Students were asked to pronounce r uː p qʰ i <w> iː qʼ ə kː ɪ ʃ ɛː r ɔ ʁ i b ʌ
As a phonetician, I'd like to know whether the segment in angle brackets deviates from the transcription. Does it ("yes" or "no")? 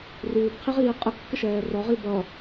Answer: yes